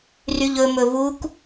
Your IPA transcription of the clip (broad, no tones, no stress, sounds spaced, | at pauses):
r y ʎ ɵ m ɵ v u k